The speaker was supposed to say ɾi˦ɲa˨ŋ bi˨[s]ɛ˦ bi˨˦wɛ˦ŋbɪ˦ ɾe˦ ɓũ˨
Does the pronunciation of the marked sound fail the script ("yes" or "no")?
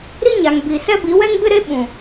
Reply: no